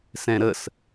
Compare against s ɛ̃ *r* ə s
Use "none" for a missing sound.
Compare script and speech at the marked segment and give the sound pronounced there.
ɾ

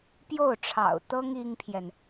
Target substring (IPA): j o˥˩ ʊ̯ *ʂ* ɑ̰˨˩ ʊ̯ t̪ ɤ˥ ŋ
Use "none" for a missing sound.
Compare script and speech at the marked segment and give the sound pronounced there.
ʈ͡ʂʰ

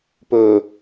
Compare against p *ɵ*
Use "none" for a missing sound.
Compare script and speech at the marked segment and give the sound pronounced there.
ɵ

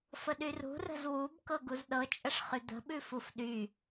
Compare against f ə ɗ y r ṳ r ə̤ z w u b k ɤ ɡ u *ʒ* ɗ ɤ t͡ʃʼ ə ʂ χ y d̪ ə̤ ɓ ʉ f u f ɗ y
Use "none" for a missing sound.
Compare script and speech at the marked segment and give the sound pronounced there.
z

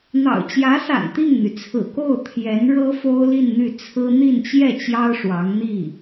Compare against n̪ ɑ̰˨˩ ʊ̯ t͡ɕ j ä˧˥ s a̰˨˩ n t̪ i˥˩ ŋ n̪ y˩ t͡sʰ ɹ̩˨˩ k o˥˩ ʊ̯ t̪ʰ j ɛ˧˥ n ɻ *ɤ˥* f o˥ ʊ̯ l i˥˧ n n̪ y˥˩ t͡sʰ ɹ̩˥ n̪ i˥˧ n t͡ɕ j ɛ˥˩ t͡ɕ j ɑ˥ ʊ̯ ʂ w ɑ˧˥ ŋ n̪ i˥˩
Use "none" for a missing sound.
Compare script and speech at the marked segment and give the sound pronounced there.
ɤ˥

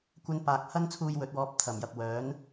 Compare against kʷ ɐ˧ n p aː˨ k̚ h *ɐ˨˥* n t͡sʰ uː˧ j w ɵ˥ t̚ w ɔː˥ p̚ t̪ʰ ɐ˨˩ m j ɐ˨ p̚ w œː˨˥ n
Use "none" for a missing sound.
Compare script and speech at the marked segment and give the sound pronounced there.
ɐ˥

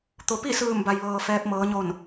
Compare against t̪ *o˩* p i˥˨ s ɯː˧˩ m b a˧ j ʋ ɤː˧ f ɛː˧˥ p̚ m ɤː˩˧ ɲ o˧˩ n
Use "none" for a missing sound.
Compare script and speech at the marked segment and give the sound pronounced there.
o˩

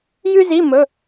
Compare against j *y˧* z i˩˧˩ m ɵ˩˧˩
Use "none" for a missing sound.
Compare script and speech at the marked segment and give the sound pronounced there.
y˧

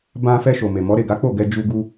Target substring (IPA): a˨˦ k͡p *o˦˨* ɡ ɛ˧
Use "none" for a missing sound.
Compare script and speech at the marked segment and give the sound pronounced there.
o˦˨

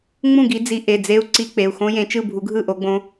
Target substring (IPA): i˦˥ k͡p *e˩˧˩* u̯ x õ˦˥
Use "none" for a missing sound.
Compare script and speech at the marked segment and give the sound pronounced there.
e˩˧˩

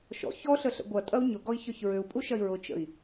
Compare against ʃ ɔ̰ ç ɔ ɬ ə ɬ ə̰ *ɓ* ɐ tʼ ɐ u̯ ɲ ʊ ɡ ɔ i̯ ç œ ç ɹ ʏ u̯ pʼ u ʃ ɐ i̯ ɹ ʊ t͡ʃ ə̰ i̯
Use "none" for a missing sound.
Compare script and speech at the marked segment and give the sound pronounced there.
ɡʷ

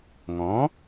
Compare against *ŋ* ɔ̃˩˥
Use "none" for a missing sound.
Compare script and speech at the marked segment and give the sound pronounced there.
ŋ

